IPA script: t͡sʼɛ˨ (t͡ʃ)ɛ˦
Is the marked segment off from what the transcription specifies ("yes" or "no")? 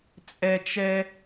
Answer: no